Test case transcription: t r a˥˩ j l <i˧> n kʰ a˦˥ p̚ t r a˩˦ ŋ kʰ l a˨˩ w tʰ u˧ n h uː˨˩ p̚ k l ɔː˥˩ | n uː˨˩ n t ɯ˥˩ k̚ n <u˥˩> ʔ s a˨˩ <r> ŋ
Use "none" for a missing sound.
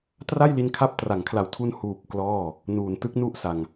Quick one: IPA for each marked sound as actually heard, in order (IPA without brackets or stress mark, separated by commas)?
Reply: i˧, u˥˩, none